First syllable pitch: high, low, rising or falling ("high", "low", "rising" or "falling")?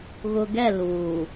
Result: low